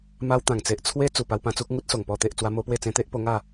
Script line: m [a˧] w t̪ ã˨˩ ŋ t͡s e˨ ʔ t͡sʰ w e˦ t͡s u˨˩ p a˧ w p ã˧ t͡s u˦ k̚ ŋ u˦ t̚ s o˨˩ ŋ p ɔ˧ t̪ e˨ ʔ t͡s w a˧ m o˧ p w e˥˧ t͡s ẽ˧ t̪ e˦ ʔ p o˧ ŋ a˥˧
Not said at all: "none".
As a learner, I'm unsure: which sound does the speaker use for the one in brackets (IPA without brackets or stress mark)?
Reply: a˧